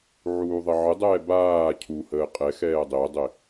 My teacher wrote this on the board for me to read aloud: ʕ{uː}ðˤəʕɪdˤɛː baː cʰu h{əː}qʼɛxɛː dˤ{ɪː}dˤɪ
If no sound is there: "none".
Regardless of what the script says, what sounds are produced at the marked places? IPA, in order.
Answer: uː, əː, ɪː

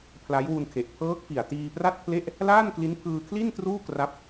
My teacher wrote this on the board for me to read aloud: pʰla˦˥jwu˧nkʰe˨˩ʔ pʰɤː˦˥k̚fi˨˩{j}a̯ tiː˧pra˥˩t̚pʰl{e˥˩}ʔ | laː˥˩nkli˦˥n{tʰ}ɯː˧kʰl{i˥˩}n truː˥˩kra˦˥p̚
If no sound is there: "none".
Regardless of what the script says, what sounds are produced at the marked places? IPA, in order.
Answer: none, e˥˩, pʰ, i˥˩

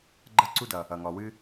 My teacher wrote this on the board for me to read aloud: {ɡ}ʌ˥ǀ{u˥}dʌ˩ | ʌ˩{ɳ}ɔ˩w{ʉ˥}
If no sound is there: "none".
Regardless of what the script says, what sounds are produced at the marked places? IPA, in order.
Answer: ɡ͡ǃ, u˥, ŋ, ɨ˥

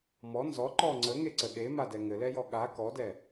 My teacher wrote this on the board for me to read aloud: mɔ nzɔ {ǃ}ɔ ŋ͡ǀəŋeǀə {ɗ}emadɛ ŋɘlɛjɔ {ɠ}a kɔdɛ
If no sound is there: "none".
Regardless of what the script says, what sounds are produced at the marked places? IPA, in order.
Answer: ǃ, ɗ, ɠ

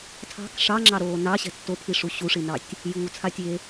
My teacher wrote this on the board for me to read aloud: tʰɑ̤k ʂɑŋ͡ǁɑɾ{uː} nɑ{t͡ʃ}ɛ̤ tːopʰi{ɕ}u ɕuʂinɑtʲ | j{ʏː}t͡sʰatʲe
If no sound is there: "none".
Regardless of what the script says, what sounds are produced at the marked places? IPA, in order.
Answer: oː, ɕ, ʂ, uː

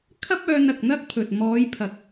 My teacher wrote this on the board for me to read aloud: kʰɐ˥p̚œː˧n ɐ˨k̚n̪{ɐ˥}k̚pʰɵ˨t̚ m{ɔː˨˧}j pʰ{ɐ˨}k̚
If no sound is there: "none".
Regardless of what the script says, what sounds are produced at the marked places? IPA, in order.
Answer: ɐ˥, ɔː˨˧, ɐ˨

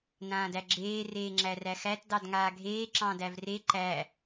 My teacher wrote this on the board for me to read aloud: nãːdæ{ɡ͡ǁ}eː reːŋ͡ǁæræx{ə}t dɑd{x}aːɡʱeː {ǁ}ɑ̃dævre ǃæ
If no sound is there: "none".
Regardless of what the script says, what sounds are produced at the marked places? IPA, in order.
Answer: ɡ͡ǁ, æ, ŋ, ǁ

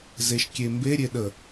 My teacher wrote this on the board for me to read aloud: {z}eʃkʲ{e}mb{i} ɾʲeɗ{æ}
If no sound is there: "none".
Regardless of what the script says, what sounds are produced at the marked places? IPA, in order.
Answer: z, e, e, ə

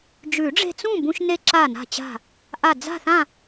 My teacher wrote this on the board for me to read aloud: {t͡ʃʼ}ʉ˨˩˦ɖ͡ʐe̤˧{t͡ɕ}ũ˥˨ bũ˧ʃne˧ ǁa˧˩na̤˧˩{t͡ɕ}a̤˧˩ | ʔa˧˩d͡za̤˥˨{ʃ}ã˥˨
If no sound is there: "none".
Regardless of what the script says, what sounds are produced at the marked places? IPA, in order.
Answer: d͡ʒ, t͡s, t͡ɕ, θ

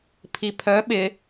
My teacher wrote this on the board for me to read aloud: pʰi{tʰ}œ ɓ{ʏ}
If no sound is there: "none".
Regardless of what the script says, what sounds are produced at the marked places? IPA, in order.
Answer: pʰ, ɪ

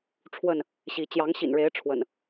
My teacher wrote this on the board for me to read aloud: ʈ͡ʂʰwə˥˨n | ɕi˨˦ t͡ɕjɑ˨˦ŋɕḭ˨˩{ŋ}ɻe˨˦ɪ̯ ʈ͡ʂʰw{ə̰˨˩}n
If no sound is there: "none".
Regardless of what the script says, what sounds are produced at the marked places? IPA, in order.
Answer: n, ə̰˨˩

